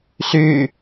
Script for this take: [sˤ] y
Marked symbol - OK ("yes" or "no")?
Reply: no